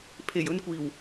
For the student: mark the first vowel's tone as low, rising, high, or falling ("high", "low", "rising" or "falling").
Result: low